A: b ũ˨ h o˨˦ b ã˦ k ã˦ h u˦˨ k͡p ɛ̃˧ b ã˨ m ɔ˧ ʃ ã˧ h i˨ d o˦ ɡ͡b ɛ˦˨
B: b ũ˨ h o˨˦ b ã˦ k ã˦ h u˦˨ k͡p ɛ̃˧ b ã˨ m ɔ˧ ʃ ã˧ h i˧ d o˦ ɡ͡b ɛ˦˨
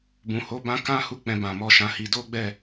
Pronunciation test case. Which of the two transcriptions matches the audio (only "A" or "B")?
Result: B